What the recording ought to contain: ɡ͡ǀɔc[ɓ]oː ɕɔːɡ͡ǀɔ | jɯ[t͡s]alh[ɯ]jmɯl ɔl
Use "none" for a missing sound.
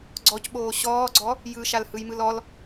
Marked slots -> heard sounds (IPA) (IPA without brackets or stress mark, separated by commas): ɓ, ʃ, ɯ